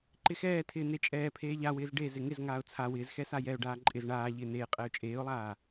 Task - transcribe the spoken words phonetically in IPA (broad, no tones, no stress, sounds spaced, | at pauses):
ǃ ɪ x ɛː tʰ ɪː n̪ e t͡ʃʼ ɛː pʰ eː ʎ a w ɪː z ɖ e z ɪ ŋ ɪ z ŋ aː ʊ̯ t͡sʰ a w ɪː z x ɛ s a j ɛ ʊ̯ ɖ aː ǃʼ ɪ z ɳ aː ʎ ɪː n eː qʼ ɛ ʊ̯ t͡ʃʼ eː ʊ̯ lˠ aː